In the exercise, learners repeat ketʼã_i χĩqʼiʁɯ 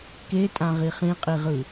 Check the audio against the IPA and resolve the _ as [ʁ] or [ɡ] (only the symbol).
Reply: ʁ